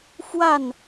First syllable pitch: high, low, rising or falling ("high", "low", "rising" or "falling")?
falling